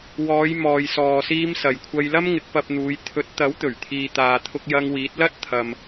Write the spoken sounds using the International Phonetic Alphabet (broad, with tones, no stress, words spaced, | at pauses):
wɔː˨˧j mɔː˨jsɔː˨ siː˧m sɐ˨jkʷʰɐ˧jlɐ˥mŋɪ˨˥k̚ pɐ˧p̚n̪uː˨˧j t̪ʰɵ˨˥t̚ t̪ɐ˨˥wt̪ɵ˨˩ɥt̪ʰiː˨ t̪aː˨t̪ʰʊ˧k̚jɐ˧ŋ wiː˨˥t̚lɐ˥t̚ t̪ʰɐ˨m